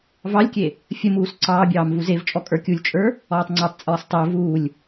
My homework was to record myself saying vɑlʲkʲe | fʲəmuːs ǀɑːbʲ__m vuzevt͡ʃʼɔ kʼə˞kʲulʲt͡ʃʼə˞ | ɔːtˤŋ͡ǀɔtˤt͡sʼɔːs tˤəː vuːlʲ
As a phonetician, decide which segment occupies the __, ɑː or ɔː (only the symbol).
ɑː